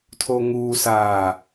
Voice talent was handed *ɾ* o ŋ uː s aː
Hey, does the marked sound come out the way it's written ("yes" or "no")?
no